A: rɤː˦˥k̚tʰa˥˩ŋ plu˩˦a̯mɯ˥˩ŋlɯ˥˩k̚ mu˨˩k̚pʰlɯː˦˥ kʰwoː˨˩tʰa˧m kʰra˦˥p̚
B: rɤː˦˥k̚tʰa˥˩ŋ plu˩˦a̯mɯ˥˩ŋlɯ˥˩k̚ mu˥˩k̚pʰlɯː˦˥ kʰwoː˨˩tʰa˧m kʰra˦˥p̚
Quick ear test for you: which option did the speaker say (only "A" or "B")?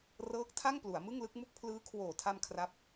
B